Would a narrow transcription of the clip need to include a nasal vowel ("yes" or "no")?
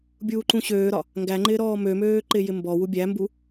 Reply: yes